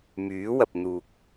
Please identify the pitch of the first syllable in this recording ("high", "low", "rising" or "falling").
rising